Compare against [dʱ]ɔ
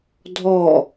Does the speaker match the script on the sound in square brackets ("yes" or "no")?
yes